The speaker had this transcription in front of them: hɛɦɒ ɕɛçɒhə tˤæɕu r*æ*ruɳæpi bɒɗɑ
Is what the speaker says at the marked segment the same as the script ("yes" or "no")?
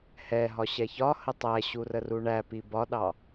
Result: no